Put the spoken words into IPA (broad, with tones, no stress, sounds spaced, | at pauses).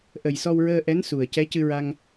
ʔ ə˨˩ j s ɔ˧ w ɹ əː˧ ʔ ɛ˧˥ n s u˨˩ ə̯ c ɛ˧˥ c ɨ˧ ɹ a˧ ŋ